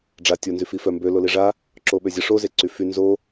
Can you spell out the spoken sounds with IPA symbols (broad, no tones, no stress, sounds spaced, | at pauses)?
ɖ͡ʐ a tʲ o n z y f i f œ m b ø l o l i ʐ a | ǁ o ɓ ø zʲ ə ʂ o z e ǀ y f y n z o